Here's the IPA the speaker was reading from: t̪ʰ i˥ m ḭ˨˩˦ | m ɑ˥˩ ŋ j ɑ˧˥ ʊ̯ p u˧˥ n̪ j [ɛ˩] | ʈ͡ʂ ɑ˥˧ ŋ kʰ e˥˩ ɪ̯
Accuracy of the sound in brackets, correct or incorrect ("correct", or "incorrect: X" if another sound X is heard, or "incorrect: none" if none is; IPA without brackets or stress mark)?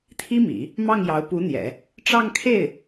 incorrect: ɛ̰˨˩˦